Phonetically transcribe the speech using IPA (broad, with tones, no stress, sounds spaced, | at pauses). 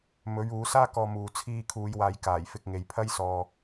m ɵ˨˥ ɥ uː˨˥ s aː˥ k ɔː˧ m uː˨ t͡sʰ iː˧ kʰ uː˨˧ j w aː˨ j k aː˨˩ j f ɪ˧ k̚ ŋ e˨˧ j pʰ ɐ˥ j s ɔː˧